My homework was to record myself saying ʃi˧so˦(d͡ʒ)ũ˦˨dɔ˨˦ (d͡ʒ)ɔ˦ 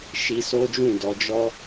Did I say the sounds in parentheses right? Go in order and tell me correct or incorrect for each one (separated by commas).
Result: correct, correct